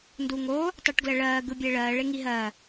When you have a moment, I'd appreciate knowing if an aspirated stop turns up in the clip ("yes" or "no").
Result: no